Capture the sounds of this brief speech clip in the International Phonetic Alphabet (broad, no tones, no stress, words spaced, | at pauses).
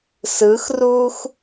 sɯxruːx